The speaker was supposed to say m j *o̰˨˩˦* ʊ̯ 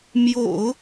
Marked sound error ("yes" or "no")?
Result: no